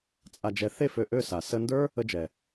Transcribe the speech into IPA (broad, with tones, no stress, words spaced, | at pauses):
t͡sʼa˧d͡ʒɛ˧ θe˦˨fø˨ʔø˦˨ sa˨ sə˧ndə˞˦ | ə˦d͡ʒɛ˨